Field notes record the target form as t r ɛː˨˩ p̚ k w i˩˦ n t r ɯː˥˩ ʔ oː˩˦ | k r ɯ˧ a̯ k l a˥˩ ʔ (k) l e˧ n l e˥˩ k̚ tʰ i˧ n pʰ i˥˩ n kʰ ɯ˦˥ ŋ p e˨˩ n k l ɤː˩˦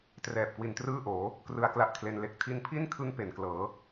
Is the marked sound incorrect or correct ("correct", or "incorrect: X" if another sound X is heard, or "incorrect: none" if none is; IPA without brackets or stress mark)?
incorrect: kʰ